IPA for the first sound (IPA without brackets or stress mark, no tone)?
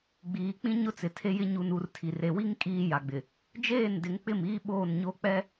ɡ͡b